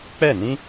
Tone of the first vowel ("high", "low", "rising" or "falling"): falling